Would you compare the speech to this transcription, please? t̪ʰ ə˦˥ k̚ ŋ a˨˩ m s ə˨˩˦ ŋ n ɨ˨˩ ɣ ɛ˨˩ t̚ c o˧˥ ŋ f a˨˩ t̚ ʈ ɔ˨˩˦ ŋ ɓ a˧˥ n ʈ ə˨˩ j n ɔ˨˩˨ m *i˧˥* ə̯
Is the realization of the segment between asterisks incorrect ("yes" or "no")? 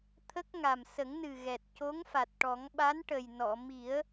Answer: yes